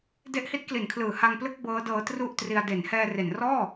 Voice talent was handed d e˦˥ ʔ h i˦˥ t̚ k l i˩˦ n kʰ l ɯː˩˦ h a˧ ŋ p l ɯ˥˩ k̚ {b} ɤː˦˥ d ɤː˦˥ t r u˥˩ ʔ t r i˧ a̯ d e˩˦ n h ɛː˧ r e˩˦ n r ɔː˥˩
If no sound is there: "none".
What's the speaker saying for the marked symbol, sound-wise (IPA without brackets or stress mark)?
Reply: b